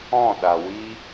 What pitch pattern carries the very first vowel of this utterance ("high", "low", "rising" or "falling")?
falling